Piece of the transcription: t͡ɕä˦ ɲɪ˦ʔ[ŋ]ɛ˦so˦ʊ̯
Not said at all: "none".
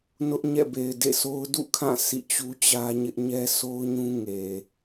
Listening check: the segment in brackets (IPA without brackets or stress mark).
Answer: ɲ